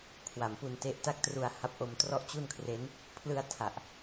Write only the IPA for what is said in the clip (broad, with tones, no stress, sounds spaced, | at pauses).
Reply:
kʰ w a˨˩ m p u˧ n t e˦˥ ʔ t a˥˩ k̚ t r u˧ a̯ h a˦˥ p̚ ʔ o˧ m t r ɔ˥˩ ʔ t͡ɕ u˥˩ n kʰ r e˦˥ n | pʰ l ɯ˧ a̯ tʰ a˨˩ ʔ